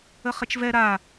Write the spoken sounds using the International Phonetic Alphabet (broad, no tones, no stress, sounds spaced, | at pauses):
ə χ ɪ t͡ʃ v ɛ ɾ a